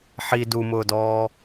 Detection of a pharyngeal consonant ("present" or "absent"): present